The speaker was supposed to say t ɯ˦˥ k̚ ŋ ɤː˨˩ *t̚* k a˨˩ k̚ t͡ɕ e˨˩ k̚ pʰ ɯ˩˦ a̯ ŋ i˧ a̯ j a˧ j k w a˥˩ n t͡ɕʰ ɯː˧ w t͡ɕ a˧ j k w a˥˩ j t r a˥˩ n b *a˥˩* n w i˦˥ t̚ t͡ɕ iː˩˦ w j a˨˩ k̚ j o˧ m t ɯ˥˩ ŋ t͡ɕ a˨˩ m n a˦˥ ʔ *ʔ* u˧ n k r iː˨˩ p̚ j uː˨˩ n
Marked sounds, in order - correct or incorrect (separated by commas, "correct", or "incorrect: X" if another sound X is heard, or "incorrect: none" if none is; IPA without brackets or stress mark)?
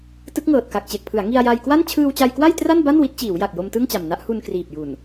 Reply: correct, correct, incorrect: h